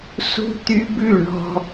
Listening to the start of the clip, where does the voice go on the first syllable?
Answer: high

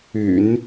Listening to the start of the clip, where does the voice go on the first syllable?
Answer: low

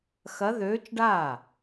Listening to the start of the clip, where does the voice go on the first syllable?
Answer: rising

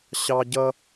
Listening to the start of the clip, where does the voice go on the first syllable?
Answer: high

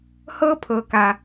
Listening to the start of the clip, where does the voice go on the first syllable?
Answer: high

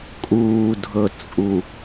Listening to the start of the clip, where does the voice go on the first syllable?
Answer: low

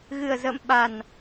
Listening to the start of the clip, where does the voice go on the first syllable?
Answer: low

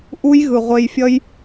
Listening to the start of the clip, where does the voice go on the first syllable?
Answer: high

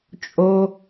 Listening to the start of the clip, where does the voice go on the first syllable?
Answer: high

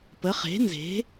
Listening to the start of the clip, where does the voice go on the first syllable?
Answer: rising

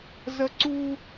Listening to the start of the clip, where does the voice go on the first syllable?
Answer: high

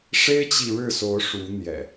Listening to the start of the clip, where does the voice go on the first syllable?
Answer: high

